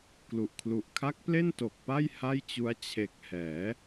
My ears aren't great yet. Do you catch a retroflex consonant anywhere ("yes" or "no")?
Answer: no